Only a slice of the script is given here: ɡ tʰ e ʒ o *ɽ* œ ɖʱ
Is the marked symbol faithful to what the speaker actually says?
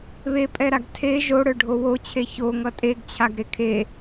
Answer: yes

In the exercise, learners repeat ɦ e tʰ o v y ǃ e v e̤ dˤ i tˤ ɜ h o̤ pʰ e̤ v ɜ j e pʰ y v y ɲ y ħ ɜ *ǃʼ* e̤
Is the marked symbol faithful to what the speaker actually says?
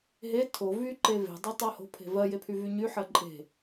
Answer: yes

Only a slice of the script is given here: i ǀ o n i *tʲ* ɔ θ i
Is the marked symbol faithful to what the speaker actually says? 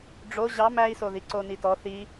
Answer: no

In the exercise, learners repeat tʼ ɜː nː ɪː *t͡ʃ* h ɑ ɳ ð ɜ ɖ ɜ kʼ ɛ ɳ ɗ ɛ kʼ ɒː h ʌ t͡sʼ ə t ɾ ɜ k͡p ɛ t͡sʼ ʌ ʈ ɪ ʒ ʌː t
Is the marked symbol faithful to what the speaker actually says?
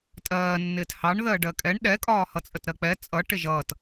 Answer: no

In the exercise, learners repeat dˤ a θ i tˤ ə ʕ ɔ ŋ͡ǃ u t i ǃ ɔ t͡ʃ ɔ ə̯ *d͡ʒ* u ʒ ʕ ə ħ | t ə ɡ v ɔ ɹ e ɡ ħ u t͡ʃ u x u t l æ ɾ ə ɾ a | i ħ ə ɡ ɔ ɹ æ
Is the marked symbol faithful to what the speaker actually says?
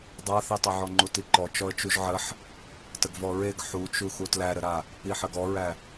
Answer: no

